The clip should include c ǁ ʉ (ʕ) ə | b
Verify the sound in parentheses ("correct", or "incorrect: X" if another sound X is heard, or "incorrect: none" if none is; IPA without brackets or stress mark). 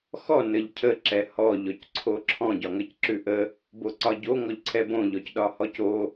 incorrect: ʔ